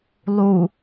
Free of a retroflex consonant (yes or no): yes